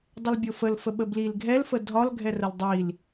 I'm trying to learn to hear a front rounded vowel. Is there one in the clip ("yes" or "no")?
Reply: yes